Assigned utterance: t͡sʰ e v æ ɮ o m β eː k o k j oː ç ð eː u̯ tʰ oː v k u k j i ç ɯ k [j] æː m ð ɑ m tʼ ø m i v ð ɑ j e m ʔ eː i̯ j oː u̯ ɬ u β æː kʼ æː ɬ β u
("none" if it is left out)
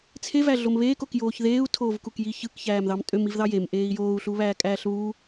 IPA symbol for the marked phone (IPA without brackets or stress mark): ç